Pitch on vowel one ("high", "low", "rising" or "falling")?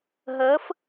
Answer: rising